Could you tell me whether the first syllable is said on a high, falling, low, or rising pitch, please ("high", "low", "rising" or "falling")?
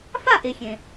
falling